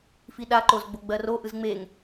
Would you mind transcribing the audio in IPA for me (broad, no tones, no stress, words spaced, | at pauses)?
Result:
fiɗaǃoz ɡ͡boɡ͡bɜro ʔɯzŋ͡meŋ